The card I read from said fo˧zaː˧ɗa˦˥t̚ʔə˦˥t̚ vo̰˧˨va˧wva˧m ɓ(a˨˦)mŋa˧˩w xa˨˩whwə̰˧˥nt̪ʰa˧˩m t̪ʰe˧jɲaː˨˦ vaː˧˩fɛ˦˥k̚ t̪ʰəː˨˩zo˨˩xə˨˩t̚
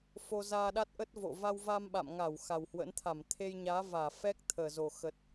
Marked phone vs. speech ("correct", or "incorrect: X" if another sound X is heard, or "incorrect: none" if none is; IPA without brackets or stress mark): incorrect: a̰˧˨